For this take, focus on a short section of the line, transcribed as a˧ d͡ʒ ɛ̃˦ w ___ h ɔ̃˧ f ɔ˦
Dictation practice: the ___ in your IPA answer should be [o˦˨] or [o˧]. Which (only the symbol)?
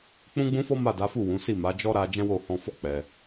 o˦˨